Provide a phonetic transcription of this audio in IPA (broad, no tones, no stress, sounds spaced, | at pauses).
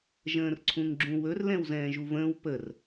ʒ ə̃ː r ǀʰ ũ ŋ ɡ͡ǁ ũ w ɵ r l ɛ̃ w z ɛ̃ː ʒ u v ə̃ː w p ə r